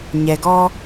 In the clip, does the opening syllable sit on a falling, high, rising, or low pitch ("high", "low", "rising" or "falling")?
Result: low